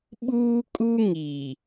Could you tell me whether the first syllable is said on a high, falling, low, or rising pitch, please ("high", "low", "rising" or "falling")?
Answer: high